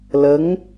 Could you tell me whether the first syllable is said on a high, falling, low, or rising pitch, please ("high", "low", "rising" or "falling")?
rising